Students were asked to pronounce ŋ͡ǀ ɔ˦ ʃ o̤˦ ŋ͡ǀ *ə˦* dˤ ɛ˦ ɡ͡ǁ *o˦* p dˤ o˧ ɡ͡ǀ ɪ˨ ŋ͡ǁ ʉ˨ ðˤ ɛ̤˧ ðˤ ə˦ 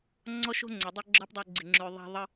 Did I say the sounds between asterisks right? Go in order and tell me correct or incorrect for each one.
incorrect, incorrect

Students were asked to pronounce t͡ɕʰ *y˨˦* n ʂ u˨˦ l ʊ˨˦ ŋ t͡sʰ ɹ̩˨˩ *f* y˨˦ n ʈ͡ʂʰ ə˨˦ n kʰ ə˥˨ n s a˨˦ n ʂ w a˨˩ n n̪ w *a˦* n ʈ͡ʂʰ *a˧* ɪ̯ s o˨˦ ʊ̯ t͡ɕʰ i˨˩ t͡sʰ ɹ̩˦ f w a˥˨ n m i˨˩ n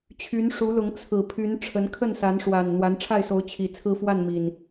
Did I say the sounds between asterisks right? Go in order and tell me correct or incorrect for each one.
correct, incorrect, incorrect, incorrect

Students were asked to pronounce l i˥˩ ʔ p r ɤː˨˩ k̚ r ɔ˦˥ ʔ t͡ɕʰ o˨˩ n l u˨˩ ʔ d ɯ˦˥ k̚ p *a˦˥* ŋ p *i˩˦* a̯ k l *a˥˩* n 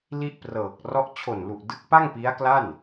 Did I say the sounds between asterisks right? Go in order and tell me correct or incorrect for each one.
incorrect, incorrect, correct

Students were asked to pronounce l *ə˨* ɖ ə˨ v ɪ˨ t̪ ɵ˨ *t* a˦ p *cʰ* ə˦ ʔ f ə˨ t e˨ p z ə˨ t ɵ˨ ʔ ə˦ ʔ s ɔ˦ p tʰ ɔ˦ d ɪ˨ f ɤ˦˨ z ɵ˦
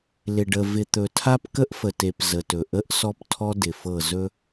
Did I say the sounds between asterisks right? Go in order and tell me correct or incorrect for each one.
incorrect, incorrect, incorrect

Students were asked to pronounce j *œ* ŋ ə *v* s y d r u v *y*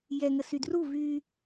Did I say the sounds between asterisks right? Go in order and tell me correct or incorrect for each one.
incorrect, incorrect, correct

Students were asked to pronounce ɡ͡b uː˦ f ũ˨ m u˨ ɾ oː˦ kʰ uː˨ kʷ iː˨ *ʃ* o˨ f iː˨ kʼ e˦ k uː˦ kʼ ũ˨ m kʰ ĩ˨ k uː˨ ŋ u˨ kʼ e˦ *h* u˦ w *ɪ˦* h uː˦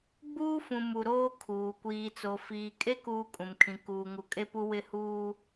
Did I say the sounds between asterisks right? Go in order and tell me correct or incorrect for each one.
incorrect, incorrect, correct

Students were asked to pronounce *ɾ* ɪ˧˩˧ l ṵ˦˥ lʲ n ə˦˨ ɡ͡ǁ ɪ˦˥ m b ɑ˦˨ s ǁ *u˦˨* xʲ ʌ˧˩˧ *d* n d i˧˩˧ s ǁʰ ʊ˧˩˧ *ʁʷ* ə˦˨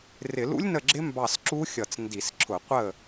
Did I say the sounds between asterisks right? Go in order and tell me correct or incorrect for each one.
incorrect, incorrect, incorrect, incorrect

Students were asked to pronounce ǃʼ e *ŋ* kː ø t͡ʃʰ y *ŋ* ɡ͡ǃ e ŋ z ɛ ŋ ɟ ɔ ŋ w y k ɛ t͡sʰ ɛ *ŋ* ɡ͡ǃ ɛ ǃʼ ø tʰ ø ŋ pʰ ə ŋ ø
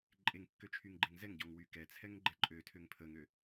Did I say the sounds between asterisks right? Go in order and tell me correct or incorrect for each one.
correct, correct, correct

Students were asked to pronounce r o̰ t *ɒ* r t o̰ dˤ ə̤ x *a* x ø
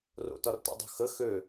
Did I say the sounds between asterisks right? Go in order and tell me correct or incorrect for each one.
correct, incorrect

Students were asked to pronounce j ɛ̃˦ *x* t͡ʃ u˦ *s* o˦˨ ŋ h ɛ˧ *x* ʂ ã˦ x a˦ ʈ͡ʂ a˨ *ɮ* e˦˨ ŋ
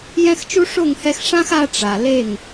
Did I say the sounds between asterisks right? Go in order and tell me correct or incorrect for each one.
correct, incorrect, correct, incorrect

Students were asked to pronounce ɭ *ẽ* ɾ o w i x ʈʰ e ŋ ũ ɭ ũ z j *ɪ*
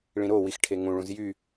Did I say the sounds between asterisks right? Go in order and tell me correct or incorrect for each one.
incorrect, incorrect

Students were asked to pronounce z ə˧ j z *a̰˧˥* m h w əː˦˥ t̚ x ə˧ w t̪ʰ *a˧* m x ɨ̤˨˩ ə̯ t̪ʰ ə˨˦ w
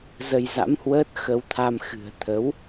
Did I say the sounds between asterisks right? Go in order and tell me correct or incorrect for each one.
correct, correct

